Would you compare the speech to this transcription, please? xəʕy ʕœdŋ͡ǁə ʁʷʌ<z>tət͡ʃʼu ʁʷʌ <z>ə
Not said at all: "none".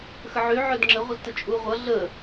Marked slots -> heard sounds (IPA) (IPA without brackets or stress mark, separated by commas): z, ɮ